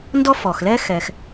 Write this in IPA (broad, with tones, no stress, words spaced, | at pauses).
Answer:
ndɔ˥fɔ˩xlɛ˥ xɛ˩x